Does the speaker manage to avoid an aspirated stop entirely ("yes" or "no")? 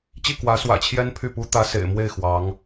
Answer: no